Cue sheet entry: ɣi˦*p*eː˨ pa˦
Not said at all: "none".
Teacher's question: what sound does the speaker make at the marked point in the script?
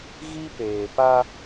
p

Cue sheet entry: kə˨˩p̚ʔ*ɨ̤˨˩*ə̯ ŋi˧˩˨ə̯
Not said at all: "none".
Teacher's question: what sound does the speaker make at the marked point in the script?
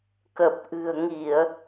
ɨ̤˨˩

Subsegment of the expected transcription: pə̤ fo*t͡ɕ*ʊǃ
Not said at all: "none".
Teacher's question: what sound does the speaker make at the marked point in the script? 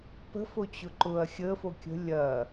t͡ɕ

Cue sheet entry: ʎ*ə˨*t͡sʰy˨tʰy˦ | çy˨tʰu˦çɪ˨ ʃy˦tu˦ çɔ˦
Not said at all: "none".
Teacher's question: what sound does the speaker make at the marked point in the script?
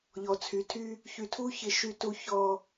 ɔ˨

